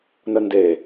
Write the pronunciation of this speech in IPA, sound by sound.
n ə n d e

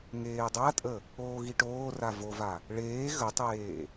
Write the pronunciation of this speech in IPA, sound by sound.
ŋ eː dˤ a tʼ ə | oː ɣ i ʈ oː r a v o v a | ɭ eː ɣ ə tˤ eː

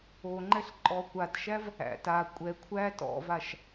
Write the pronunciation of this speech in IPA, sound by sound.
o ŋ͡ǃ ɛ ɬ ǃʼ ɔ kʷ a d ʃ æ v | æ̰ t a kʷʼ ɛ kʷʰ æ t ɔ̰ v a ʃ

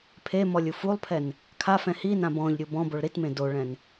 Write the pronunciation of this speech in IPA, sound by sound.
pʰ e m ɔ lʲ u f u lˠ pʰ ɛ n | kʰ a f ɛ̃ h i n ã b ɔ̃ ʎ ɾʲ u b ɔ̃ b o ɭ ɾ i t m ẽ d o ɭ ɛ̃ n

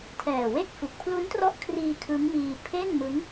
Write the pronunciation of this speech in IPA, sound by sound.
tʰ ɛː˨˩ w e˥˩ k̚ f u˨˩ k̚ pʰ l u˦˥ n t r ɔ˦˥ ʔ kʰ r iː˧ kʰ ɯ˦˥ ŋ m iː˧ pʰ e˥˩ n m ɯ˦˥ ŋ

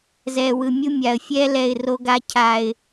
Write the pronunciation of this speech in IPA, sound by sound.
z ɛː˨ w ɯ˨ mʲ u˦ mʲ a˨ ə̯ fʲ ɛː˦ l ɛ˦˨ ɪ̯ r o˦ ɡ a˦ cʰ a˨ ɪ̯

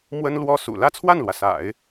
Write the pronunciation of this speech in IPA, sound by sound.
m w ə˥ n l w ɔ˥ s ṵ˨˩ l ä˥˧ t͡sʰ w a˥˩ n l w ä˩ s a̰˨˩˦ ɪ̯

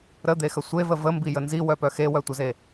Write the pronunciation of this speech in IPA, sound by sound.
ɾ ə d̪ e x ə sʷ e v ə v ə m b i j ə n z i w œ p œ x e w œ tʷ ə z e

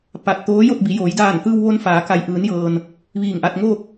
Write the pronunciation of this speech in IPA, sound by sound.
p a˧˩ t̚ t̪ oː˧˥ j o˥˨ t̚ b i˩˧ j oː˩˧ j d aː˧˩ n t̪ ɯː˧ w ʋ o˧ n f aː˩˧ k a˩ j ʔ ɯː˩˧ n j ɤː˩ n | ʋ iː˧˩ ŋ ʔ a˧ t̚ ŋ oː˥˨ k̚

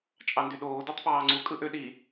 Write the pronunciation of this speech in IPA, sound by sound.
t͡ʃʼ ɑ n d y ɗ oː d o tˤ p ɑː ŋ͡ǀ u kʼ ɯ ʔ ø ɗ i

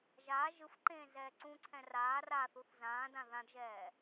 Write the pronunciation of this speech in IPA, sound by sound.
ʒ aː ʒ ɯ f ǃ ẽː z ɛː ǀ ũ ǀʰ ɛ̃ r aː r a θ u θ z ãː d ã ð ã d ʒ ɛː

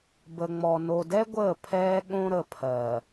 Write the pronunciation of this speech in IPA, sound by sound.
b ə˨ ŋ͡m ɔ˨ n o˨ d ɛ˦ ɡʷ əː˦˨ pʰ ɛː˦ ɠ õ˦ ɾ ə˨ pʰ ɜ˨

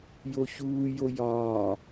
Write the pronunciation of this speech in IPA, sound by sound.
j o ç uː j o j ɒː

